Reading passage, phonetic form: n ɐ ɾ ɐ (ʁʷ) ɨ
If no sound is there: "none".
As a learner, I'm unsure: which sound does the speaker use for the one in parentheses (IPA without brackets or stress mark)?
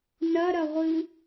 ʁʷ